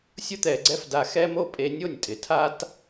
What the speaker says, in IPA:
sʲ ʊ˦ t̪ ɛ˧ ɡ͡ǀ ɛ˦ f d a˧ x ɛ˦ m o˦ pʼ e˧ nʲ o˦˨ nʲ tʼ ɪ˨ tʰ a˦ t

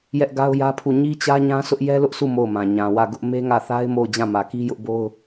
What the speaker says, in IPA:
j ɛ˦ ʔ ɡ a˦ ʊ̯ j ä˦ pʰ u˦˨ ɲ i˦ t͡ɕ ä˦ ɲ ã˦ s ʊ˦ ʔ j ɛ˦ l ʊ˦ ʔ sʰ u˦˨ m o˦˨ ʊ̯ m ã˨ ɲ ã˨ w ä˦˨ ɡ ʊ˦ ʔ m e˦ ŋ ä˦˨ θ a˦ ɪ̯ m o˦˨ ʊ̯ d͡ʑ ã˦˨ m ä˨ k i˦ j ʊ˦ ʔ b o˦ ʊ̯

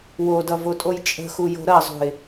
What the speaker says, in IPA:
w o d ʌ v o tʼ o j t͡ʃʼ ə̤ x u j o̤ ɾ ɐ zˤ ṳ ɪ̯

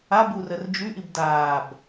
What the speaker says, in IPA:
a b u r ə r d͡ʒ y ʔ i b d aː b

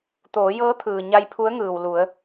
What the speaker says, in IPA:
t̪ oː˩˧ j ɤː˧˥ t̪ʰ ɯː˩ ɲ a˧ j pʰ u˧˥ ə̯ ŋ ɯː˩ w l u˩˧ ə̯

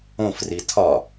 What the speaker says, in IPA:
õ f r i tʰ ɒ

